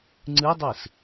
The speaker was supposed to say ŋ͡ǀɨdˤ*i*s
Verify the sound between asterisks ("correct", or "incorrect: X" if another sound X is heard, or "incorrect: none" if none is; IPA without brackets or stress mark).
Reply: incorrect: ɨ